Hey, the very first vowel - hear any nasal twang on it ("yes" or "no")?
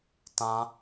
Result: yes